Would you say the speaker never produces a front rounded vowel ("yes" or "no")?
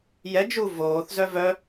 no